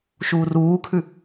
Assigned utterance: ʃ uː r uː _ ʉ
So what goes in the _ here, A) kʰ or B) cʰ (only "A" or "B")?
A